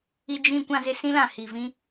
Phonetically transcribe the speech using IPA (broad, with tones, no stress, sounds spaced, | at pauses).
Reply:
i˨ d͡ʒ ĩ˨ kʷ ã˨ z ɪ˨ s ĩ˦ l ã˨ h i˨ v ĩ˦